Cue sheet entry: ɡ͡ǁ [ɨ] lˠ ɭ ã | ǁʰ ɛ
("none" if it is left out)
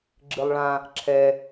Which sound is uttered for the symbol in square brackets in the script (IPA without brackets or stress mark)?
ɨ